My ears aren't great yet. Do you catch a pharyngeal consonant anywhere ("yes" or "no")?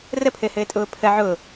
yes